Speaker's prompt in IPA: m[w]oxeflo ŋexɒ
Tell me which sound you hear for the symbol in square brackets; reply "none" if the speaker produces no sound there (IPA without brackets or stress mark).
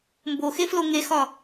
b